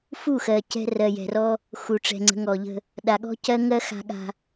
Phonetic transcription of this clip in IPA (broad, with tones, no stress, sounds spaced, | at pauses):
f u˦˨ x ɜ˨ c ɛ̤˦ r ɜ˨ j ɛ̤˨ r ɔ˦ | x u˨ ʈ͡ʂ ɛ̤˨ ŋ͡ǀ ə̤˨˦ ŋ ɔ˨ ʎ ə̤˦ | ɗ a˨ ɠ ɔ̤˦ c ɜ˦ ŋ ɜ˦ x a̤˦ ɠ a̤˦